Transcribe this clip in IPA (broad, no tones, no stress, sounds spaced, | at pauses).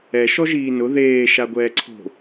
ɛ ʃ ɔ ʒ iː n ʊ ð eː ʃ a ɡʷ ɛː ǀʰ o̤